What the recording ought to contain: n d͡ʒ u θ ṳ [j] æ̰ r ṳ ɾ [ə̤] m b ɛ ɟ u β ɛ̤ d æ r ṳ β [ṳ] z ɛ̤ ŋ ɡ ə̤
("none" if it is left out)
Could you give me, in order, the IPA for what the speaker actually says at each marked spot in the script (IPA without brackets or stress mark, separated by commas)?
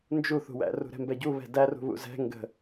w, ɛ̤, ṵ